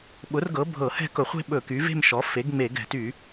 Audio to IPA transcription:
ɓ ʊ˩˥ r ɡ ɤ˩˥ bʱ ɤ˧˩˧ h ɛ̤˥˧ k ʊ˧˩˧ χʷ e̤˥˧ ɓ ɵ˧˩˧ k y˩˥ v e̤˥˧ m ʃ ɔ˩˥ f e˩˥ ɡ ŋ͡m e˧˩˧ ɡ ɛ̤˧˩˧ t y˧˩˧

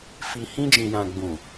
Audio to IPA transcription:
f i˨ h ĩ˧ d͡ʒ ĩ˨ j ã˨ ɡ͡b ũ˨

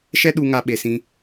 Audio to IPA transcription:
ʃ ɛ˦ ɗ u˧ ŋ a˧ ɓ e˧ s ĩ˦

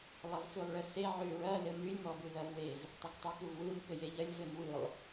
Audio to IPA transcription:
lˠ ɐ v f ʉ lˠ ɭ ɘ s e ʕ ʉ ɹ ɐ l ɘ m ʉ lʲ m ɔ b ʉ ð ɐ v w e v | tˤ ɘ k tˤ ʉ k u v w ɯ m k ɘ j e ʎ ɐ lʲ v ɘ m w ɯ lˠ

